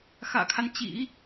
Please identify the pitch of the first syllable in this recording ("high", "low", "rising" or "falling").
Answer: low